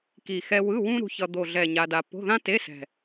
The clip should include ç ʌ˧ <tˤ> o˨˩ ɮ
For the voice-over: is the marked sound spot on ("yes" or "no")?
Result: no